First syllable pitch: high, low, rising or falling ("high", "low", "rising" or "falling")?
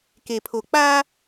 low